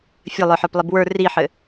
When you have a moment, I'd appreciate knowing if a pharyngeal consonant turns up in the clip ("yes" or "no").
yes